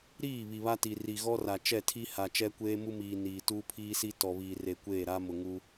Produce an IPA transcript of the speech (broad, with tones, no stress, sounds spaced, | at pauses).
ɾ iː˦˨ β i˨ β a˦ t i˨ r i˨ ɣ ɔ˦ r a˨ t͡ʃ ɛ˦˨ tʰ i˦ h a˨ t͡ʃ ɛ˦ kʷ eː˦ m u˦ m iː˨ n iː˨ t uː˦ pʰ iː˦ s i˦ t ɔ˨ β iː˨ r e˨ kʷ eː˦˨ ɾ a˦ m ʊ˨ ŋ u˦